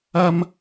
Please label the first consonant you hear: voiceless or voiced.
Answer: voiced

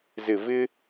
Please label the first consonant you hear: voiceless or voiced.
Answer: voiced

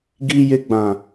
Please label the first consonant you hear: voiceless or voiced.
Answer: voiced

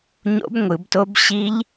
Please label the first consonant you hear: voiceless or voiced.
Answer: voiced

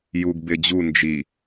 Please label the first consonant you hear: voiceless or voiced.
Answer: voiced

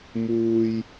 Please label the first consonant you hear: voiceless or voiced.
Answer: voiced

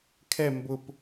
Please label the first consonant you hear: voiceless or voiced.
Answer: voiceless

